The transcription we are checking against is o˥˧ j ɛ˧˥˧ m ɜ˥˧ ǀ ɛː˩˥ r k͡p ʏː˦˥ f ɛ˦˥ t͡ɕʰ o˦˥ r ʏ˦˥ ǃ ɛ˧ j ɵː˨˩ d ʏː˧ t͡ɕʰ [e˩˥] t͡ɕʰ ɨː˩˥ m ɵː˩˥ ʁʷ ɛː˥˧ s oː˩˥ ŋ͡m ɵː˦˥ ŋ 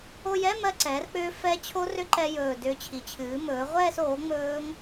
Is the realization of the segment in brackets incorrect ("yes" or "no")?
yes